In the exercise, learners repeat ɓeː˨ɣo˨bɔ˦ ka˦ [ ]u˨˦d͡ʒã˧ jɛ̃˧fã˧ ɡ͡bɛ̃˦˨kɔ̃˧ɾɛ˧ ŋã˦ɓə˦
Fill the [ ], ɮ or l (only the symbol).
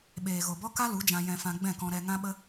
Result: l